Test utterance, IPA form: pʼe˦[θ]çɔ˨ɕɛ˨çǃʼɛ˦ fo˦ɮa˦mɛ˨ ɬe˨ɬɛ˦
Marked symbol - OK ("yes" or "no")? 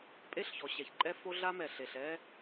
no